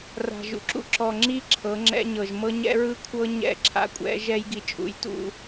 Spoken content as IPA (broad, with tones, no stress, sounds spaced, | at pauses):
r a̤˨ ʒ ṵ˨ ǁ ṵ˦ ǁ ɔ˨ ŋ͡ǁ i˦ ǁʰ ɤ˨˦ ŋ͡ǁ ɛ̰˦ ɲ ɤ˨ ʒ m ɤ˦ ɲ ɛ̰˦ ɹ ɯ˦ kʷʰ ɤ˦ ɲ ɛ̰˦˨ ǁʰ a̰˦ kʷʼ ɛ̰˨˦ ʒ ɛ˦ j ɡ i˨ t͡ʃʼ ṵ˨˦ j t ṵ˦